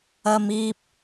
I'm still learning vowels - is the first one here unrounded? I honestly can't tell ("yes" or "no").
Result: yes